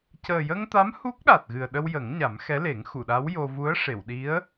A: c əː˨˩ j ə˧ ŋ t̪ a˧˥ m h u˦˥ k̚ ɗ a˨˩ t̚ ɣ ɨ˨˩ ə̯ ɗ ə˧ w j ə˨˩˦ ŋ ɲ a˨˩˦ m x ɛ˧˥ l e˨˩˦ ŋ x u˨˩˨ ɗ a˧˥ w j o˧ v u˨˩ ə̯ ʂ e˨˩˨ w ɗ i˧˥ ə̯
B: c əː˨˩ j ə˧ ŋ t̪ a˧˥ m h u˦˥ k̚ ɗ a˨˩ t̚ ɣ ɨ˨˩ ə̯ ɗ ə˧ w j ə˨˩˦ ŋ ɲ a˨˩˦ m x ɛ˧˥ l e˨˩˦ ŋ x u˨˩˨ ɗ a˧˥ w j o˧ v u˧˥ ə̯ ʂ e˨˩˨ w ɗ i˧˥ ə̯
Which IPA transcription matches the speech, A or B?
B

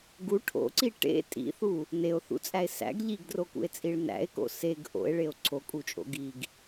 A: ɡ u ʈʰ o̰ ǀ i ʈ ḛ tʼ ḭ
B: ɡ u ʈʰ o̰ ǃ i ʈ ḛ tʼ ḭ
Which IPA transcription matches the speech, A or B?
A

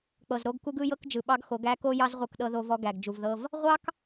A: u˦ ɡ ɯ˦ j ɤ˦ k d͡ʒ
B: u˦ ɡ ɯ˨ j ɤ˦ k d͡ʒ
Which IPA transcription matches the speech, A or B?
A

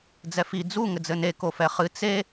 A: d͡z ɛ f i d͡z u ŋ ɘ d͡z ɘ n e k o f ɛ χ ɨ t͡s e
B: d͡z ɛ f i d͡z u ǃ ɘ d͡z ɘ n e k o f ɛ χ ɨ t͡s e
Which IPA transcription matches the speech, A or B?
A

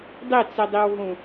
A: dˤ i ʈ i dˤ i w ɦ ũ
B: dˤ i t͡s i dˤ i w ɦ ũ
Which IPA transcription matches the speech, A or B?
B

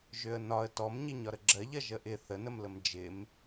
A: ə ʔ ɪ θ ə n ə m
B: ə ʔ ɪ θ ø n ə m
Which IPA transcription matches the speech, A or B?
A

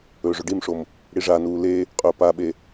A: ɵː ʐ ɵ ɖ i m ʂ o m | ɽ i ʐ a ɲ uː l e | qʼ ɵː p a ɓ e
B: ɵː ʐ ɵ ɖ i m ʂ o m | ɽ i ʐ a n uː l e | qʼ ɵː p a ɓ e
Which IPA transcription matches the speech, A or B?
B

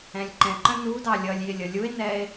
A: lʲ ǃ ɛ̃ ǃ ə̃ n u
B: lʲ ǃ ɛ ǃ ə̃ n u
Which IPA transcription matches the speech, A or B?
A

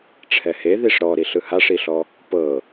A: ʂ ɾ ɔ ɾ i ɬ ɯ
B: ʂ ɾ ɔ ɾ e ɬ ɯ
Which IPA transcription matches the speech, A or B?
A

